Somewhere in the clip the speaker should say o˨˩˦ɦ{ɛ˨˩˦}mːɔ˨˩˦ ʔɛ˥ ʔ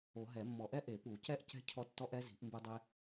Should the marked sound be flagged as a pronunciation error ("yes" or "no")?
no